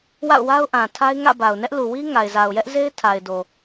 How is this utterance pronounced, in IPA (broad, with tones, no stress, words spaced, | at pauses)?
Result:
wa̰˦˨ʊ̯wa˦ʊ̯ʔã˨tʰa˦ɪ̯ ŋä̰˦˨ba˨ʊ̯nɛ˦ʔ lu˨wi˦ ŋa˨ɪ̯za˨ʊ̯jɛ˦ʔze˦ɪ̯ tʰa˨ɪ̯do˨